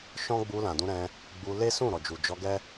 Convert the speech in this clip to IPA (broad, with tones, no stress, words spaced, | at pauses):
ʃɔ̃˦ ɡ͡bu˧lã˨dũ˧ɾɛ̃˧ | ɡ͡bu˧ le˦sũ˦˨ ɾɔ˨d͡ʒu˨ d͡ʒɔ˧ɡɛ˦